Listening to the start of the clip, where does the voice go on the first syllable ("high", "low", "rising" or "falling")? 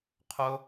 high